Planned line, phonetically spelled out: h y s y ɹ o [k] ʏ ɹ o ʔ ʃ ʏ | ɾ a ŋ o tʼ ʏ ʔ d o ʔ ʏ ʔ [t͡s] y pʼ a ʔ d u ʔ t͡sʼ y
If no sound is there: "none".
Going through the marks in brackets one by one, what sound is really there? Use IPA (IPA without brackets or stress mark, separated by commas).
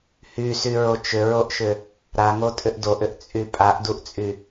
t͡ʃ, t͡sʼ